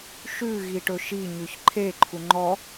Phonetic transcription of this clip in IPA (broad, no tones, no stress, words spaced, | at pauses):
ʃʉ ɣiʈɵʃi ɲʉçǃʰe ǃʰuŋ͡ǃɔ